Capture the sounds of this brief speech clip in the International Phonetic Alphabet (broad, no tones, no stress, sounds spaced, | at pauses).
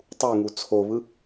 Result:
tˤ u ŋ u t͡sʰ o β ɯ